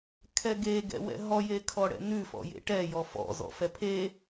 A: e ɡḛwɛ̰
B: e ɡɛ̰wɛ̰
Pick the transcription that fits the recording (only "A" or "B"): B